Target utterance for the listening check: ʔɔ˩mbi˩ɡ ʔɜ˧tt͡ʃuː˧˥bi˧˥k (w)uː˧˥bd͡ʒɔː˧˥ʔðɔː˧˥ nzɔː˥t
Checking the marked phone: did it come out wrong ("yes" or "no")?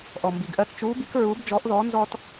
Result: yes